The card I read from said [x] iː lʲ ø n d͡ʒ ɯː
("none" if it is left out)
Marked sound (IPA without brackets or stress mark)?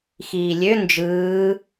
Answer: x